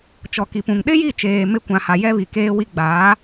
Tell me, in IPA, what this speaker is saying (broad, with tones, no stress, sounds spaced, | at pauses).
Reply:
t͡ʃ ɔ˨ k i˨ p ũ˨ ŋ ɗ ɪ˦ j i˦˨ t͡ʃ eː˨ m ɪ˦˨ kʷ ã˨ h a˨ j ɛ˦ β i˨ k eː˦ w i˦ ɡ͡b aː˨˦